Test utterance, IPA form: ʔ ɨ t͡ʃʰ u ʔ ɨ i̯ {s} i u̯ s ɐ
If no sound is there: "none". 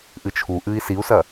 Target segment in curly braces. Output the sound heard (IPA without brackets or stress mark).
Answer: s